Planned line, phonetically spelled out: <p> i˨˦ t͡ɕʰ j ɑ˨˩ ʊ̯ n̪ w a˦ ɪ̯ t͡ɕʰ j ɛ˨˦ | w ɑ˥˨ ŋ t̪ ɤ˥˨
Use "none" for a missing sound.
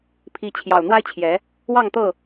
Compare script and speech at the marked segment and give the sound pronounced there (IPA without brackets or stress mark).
pʰ